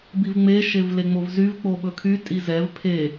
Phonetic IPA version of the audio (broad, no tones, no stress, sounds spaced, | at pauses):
b i v ŋ͡m e ʃ e v l e ŋ͡m o v z y v k͡p o ɓ ɵ kʰ y tʼ i z ɛ v pʰ e